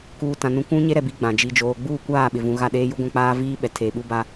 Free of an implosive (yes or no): no